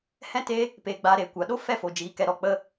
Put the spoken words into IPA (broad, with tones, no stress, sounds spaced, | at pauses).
h ɛ̃˦ t e˦ | p eː˧ ɡ͡b aː˧ ɾ eː˨ kʷ a˨ ɗ o˦ f ɛ˦˨ f o˨ d͡ʒ iː˨˦ k ɛ˧ ɾ ɔ˧ k͡p ə˧